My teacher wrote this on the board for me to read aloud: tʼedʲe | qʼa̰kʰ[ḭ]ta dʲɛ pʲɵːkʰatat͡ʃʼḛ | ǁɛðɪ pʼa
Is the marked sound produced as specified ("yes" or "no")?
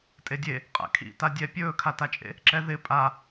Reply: yes